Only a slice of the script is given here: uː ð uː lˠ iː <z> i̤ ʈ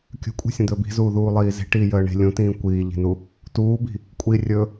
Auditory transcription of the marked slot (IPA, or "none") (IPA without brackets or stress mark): z